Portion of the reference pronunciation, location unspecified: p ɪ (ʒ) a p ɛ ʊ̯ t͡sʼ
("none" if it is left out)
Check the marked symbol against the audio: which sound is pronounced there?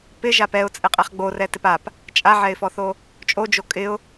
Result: ʒ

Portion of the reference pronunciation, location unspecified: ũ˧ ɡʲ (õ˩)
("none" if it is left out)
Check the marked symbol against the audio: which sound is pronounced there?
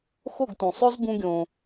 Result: õ˩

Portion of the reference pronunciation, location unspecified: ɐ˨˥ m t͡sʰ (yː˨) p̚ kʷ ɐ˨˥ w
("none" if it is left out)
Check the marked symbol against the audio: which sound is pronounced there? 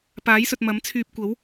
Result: yː˧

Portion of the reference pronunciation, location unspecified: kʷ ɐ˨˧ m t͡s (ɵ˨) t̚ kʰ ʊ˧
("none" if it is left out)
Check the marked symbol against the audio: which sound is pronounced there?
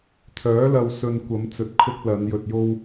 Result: ɵ˨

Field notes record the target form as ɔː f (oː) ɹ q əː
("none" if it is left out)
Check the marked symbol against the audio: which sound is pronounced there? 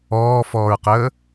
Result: ɔː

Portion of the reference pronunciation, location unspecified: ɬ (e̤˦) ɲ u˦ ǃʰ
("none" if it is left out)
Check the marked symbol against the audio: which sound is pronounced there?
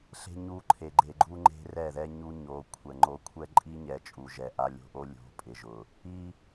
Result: e̤˦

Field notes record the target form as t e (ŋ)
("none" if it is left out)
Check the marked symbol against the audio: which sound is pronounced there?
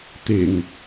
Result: ŋ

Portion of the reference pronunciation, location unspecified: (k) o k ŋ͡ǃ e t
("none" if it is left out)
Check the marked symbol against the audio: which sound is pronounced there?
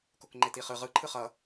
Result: k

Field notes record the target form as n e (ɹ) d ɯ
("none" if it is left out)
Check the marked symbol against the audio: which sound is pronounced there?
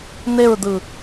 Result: ɹ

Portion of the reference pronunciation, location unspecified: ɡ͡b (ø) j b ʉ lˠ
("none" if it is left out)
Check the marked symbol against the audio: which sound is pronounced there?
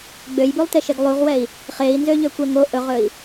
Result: ø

